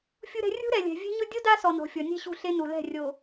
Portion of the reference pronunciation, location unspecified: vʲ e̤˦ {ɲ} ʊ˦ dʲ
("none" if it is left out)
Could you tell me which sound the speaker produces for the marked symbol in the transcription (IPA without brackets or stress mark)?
ɲ